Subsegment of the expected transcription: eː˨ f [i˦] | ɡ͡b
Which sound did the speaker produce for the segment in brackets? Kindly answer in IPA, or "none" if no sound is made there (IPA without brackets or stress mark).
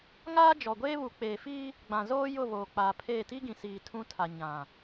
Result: iː˦